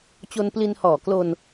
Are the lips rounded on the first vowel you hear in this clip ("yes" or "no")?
yes